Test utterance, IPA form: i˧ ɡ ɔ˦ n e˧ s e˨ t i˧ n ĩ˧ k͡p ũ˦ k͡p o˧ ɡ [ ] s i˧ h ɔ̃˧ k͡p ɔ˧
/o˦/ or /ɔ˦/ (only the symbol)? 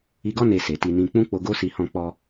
o˦